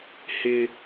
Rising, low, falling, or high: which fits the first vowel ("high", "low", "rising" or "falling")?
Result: high